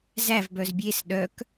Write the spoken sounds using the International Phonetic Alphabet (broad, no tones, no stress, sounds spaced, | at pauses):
z æ v b œ z bʲ e s ɗ œ k